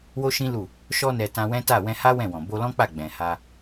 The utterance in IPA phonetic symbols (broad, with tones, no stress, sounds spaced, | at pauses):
w o˦ ʃ ĩ˦ l u˦˨ | ʃ ɔ˧ n ɛ˧ t ã˧ w ɛ̃˦ t a˦˨ w ɛ̃˧ h a˦ w ɛ̃˦˨ w ɔ̃˨ b o˧ l ɔ̃˦ k͡p a˦˨ ɡ͡b ɛ̃˨ h a˧